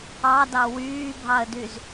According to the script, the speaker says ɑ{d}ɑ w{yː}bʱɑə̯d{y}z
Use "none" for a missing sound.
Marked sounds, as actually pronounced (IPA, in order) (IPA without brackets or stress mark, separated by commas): d, yː, y